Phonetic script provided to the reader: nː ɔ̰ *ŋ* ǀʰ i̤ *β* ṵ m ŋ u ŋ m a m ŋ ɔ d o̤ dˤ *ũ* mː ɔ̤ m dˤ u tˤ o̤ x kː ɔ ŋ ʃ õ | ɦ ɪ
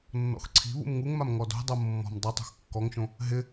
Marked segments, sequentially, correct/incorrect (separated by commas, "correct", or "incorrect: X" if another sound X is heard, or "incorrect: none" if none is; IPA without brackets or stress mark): incorrect: x, correct, incorrect: u